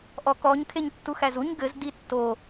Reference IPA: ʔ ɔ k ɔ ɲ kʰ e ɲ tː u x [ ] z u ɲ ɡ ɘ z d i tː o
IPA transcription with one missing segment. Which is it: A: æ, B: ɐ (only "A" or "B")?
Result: A